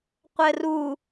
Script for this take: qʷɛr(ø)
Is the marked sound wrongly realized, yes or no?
yes